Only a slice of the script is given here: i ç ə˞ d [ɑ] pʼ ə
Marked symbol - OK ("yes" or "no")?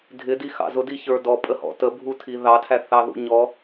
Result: no